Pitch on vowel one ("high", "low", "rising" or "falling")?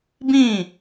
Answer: falling